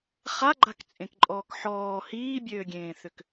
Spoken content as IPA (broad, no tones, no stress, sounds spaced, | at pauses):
χ a ɡ͡ǃ a k t͡sʼ ẽ k ǃʼ ɔː k ħ ɔː h iː bʲ øː ɡʲ ẽː θ ʏ k